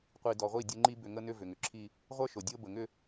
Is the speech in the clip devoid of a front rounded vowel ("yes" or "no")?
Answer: no